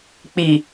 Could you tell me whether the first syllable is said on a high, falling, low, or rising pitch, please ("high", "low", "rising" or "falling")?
low